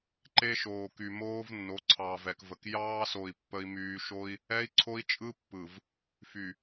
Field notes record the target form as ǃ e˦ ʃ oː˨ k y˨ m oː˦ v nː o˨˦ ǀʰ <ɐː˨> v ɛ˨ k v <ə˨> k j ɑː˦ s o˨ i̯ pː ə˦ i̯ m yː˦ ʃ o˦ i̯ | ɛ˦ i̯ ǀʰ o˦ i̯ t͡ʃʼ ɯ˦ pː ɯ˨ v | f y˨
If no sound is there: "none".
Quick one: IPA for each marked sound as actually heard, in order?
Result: ɑː˨, ə˨

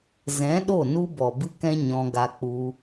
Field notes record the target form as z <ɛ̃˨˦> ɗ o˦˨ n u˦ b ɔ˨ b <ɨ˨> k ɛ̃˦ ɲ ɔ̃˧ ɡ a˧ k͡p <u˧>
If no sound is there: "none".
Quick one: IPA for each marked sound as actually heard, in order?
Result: ɛ̃˨˦, ɨ˦, u˧

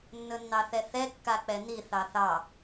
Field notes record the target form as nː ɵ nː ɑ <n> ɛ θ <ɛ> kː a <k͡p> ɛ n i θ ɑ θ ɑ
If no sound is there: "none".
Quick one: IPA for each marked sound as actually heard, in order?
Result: θ, ɛ, k͡p

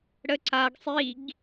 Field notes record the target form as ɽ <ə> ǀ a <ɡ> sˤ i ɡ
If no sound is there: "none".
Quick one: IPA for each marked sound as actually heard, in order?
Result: ə, ɡ

